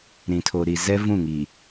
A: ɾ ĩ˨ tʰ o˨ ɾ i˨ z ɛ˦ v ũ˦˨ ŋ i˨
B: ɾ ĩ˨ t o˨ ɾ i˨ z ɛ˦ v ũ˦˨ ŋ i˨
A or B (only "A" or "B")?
A